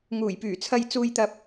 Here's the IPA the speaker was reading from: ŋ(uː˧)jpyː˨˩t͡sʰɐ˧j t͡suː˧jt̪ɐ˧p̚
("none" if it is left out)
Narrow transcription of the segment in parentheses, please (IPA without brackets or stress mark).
uː˨˩